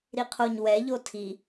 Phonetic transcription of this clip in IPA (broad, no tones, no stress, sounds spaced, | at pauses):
ɾ i qʰ o ɲ w ɛ ʎ o tʰ i